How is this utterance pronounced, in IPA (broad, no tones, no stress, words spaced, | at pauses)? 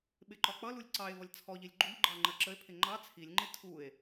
ɓɪǃɒk͡pʌlulʲ ǀɑe̯ vʌlʲt͡sʰɔʎilʲ ɡ͡ǃuʎɡ͡ǃɑ ŋ͡ǃɜǁəe̯pʰɪ ŋ͡ǃɑ t͡sʰilʲŋ͡ǃɪ tʰue̯